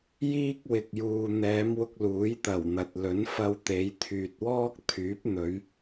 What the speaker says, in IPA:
jiː˥k̚wɪ˨k̚ juː˨n̪ɛː˨˧mwʊ˧k̚ luː˨˥jt̪ɐ˨˩wn̪ɐ˨t̚lɵ˨˥n fɐ˧wt̪e˨˧jt̪ʰyː˨t̚wɔː˥k̚ t̪ʰyː˨˥p̚n̪ɵ˨˧ɥ

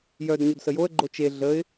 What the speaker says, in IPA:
jœd ɲodsəjoə̯ ɡ͡ǃot͡ʃe ɮəɪ̯

